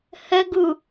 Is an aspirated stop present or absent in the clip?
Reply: absent